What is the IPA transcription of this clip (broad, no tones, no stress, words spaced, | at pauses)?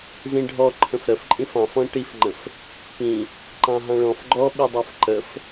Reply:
zĩɖʱɔǃʰə̃f ɾəfǃʼĩf ɑ̃fɔ̃ ʈifŋ͡ǃə̃f | pĩ | ǃɑ̃ɦɑ̃ɭɔ̃f ɡ͡ǃɔɓidˤɑf ǃəf